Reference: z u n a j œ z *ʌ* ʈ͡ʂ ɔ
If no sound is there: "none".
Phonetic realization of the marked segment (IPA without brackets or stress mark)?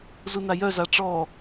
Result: a